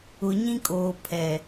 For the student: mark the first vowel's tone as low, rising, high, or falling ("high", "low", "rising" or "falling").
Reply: low